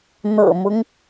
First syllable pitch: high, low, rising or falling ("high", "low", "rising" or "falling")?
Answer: low